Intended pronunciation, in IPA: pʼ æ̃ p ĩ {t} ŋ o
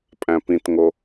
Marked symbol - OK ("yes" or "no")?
yes